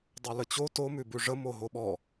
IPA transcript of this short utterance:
dˤ o l ə t͡ɕ o t o m ʉ b ʉ ʐ ə m o ɦ o ɓ ɔ

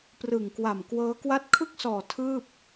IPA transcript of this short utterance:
p r ɯ˨˩ ŋ k w a˨˩ m k w ɤː˦˥ k w a˦˥ t̚ kʰ ɯ˥˩ k̚ s ɔː˨˩ tʰ ɯː˥˩ p̚

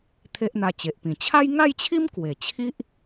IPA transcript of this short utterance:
t̪ʰ e˦ ʔ n̪ a˧ t͡ɕ e˨ ʔ p ĩ˨˩ t͡ɕʰ a˦ j ŋ a˥˧ j t͡ɕʰ i˦ m k w e˨˩ t͡ɕʰ i˦ ʔ

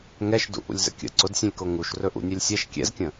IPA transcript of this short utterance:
ŋ ɛ ʃ d ṵ ʔ ṵ lʲ z ə̰ kʲ ə̰ ǀ ʊ d sʲ ũ lʲ k o ŋ u ʃ r ɵ ʔ ṵ nʲ ɛ lʲ sʲ ɛ ʃ kʲ ɛ̰ z kʲ ə̃

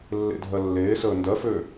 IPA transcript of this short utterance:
lː ḛ dʱ ɜ lː eː s əː n d ɜ f ø

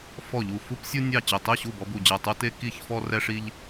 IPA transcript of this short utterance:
f ɔ˧˩ ʎ u˧˩ f u˦ p sʲ u˦ nʲ ɑ˥˩ t͡ɕ e˧˩ tˤ i˥˩ ɕ u˥˩ b ɔ˦ b u˧˩ d͡ʑ ɛ˧˩ tˤ u˦ t e˦ k i˥˩ ç f ɔ˦ r ɛ˦ ʂ i˦ ʎ

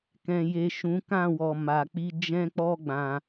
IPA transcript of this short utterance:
k ɛ̃˨ j e˨ ʃ ũ˨˦ k ã˦˨ w ɔ˨ m a˨ k͡p i˧ d͡ʒ ɛ̃˦ k͡p ɔ˦ ɡ͡b ã˧

